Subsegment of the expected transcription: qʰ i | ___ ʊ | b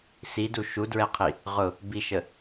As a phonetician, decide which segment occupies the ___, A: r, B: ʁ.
B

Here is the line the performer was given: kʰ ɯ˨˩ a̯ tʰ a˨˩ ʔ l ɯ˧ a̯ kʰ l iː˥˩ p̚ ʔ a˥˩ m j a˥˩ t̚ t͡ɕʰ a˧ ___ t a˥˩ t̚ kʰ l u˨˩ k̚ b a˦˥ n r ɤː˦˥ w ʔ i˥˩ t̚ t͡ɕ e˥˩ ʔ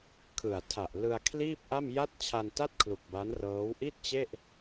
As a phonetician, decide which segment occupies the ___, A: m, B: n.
B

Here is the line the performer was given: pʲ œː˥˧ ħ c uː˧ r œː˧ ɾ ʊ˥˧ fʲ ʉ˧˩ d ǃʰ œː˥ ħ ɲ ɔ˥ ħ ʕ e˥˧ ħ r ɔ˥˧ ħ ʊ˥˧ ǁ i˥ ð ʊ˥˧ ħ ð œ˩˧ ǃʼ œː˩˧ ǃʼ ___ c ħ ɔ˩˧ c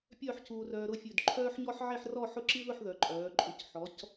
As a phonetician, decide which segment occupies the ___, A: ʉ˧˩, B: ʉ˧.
A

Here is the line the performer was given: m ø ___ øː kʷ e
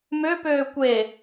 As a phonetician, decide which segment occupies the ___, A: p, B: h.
A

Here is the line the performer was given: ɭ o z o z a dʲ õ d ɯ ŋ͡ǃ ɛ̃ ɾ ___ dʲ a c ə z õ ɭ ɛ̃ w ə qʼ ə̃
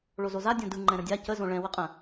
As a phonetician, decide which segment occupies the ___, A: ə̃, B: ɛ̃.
A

